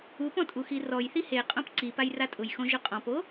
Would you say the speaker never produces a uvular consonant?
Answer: no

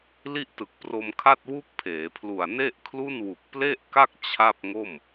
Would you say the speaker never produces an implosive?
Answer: yes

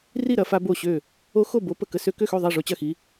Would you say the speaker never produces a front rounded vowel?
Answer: no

